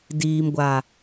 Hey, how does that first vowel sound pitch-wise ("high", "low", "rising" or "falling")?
low